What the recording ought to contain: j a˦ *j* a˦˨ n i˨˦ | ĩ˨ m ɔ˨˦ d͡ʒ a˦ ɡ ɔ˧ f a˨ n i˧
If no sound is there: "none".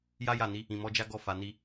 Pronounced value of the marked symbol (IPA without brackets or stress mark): j